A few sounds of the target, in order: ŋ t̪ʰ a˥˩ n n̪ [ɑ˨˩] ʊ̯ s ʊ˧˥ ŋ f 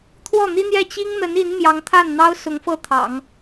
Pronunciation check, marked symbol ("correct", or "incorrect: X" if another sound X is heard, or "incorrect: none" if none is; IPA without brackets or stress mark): incorrect: ɑ˥